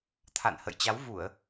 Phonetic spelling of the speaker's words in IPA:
t̪ʰa̰˧˨nhə̰˧˨j t͡ɕa˨˦wvu˧˩˨ə̯

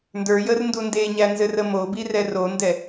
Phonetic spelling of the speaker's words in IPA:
ndə˞jərndu ndeɲænzɘrə mobirɛ rondɛ

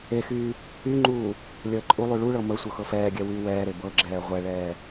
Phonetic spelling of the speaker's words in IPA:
exyː | yŋ͡ǃuː | lʲəːǃʼulˠy ɭuɭɤ mə sʷɤxɤfɛːɡʲɛ wyːwɛːɾe bɤɡ͡ǁɛː ʁʷɛɭɛː

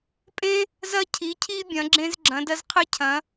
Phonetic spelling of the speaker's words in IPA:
pʼẽ˥ | zɐ˥cʰi˨˥cʰi˥ bʲɐ̃˨˥ɡ͡ǁẽ˥z ɡ͡ǁɐ̃˨˥dɐ˥zqʰɨ˥cʰɐ̃˨˥

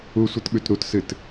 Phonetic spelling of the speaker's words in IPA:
usʷɨtɓʉt ɾutsɨt

